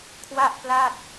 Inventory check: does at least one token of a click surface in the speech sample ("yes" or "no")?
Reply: no